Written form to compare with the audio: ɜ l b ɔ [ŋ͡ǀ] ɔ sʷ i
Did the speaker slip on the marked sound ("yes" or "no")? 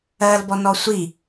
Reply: yes